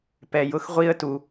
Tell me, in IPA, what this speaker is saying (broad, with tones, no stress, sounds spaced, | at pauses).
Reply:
p ɛ˧ j ʊ˥ x ʁʷ i˥ ə̯ t u˧